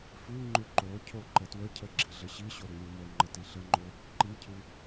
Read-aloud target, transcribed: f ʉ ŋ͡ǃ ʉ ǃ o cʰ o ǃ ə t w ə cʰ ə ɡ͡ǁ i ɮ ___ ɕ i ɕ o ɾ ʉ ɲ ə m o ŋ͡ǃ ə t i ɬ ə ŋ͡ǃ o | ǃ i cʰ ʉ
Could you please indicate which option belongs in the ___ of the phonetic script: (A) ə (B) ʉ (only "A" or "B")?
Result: A